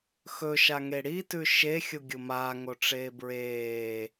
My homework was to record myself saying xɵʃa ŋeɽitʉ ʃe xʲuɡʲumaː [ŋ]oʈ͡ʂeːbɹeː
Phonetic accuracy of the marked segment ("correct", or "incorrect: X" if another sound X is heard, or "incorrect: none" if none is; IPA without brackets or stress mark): correct